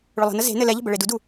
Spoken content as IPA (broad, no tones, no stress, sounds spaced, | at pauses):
ɭ ʊ lˠ ə̤ n ə z e̤ n ɘ l ɛ ʎ ə̤ b ə ɭ e d u d u